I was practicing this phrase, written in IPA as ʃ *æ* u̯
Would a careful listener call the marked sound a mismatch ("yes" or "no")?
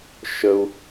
yes